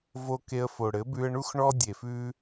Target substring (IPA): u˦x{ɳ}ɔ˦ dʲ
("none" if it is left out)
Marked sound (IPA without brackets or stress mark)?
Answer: ɳ